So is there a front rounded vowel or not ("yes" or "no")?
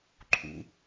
no